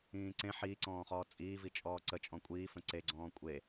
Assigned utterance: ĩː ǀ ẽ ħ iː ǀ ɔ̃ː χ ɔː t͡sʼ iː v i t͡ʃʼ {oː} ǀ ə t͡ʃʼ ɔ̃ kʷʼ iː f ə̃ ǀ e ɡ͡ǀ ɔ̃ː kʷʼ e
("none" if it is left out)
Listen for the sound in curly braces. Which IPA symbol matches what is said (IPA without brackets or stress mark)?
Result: ɔː